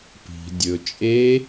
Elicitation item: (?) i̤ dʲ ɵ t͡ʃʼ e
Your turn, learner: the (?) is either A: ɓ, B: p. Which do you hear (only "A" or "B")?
B